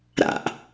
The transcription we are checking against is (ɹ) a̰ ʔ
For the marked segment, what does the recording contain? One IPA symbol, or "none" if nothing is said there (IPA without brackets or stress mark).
ɾ